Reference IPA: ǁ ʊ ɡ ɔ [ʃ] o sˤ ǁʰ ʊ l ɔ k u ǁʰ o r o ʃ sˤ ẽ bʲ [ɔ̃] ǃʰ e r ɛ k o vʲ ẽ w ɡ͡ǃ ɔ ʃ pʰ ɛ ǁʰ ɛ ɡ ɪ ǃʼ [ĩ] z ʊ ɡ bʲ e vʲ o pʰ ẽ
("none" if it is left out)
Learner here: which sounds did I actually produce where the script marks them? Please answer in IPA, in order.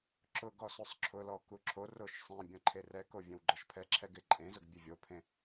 s, ɔ̃, ẽ

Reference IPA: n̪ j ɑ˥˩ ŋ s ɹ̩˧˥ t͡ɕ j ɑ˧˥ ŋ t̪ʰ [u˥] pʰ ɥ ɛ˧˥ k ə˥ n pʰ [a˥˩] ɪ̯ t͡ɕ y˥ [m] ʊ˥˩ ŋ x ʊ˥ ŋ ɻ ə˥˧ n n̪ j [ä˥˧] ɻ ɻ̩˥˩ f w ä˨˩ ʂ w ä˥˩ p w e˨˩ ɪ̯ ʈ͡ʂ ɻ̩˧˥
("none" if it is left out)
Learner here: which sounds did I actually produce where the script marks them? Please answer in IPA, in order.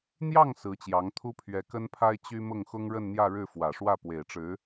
u˥, a˥, m, ä˥˧

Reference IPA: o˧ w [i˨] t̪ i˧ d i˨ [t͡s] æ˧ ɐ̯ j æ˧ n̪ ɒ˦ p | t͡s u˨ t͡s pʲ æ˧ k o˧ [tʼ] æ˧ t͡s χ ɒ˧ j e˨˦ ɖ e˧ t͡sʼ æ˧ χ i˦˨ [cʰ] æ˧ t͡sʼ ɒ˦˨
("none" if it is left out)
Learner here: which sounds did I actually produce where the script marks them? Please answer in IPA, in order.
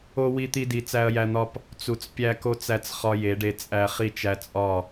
i˧, t͡s, t͡s, t͡ʃ

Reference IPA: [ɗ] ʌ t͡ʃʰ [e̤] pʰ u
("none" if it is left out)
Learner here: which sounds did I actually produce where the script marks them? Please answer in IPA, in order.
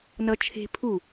n, e̤

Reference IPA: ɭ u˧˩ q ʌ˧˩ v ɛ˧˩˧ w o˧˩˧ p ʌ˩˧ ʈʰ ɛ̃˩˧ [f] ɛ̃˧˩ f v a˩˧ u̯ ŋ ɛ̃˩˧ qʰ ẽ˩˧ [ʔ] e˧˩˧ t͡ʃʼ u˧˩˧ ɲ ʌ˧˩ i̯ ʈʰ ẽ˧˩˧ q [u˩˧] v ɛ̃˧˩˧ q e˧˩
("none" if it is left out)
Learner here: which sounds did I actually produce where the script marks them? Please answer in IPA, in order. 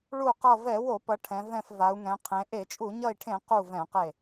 v, ʔ, u˧˩

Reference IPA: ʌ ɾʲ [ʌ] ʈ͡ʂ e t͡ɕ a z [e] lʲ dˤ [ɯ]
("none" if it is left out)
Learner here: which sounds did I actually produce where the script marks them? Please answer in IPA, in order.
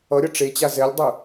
ʌ, ɛ, ɯ

